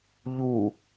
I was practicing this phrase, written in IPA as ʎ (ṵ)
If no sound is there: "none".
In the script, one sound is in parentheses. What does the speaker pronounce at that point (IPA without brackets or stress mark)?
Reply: u